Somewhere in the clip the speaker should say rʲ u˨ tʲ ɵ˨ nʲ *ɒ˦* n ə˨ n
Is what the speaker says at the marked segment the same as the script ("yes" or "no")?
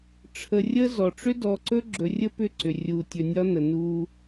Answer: yes